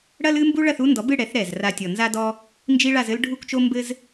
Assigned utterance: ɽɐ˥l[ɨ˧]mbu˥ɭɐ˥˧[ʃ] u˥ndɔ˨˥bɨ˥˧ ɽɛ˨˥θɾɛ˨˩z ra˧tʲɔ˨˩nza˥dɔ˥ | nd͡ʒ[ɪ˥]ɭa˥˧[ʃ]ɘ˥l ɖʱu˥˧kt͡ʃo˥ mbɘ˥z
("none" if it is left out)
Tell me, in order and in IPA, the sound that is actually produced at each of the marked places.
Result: ɨ˥, θ, i˥, z

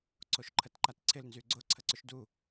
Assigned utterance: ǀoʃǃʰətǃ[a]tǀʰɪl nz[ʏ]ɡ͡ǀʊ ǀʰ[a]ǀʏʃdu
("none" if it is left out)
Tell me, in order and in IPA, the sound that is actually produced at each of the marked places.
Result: a, y, ə

